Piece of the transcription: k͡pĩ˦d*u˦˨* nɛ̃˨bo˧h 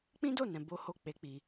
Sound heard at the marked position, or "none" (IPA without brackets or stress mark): o˦˨